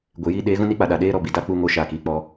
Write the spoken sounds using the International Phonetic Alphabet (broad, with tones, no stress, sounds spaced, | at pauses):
ɡʷ e˨ j iː˧ ɗ eː˨˦ ɣ ũ˦ n i˦ k͡p a˨ ɗ a˨ ɗ eː˦ ɾ ɔ˨ b i˨ d a˦ k͡p u˧ ŋ o˧ ʃ aː˨ k iː˨ k͡p ɔ˧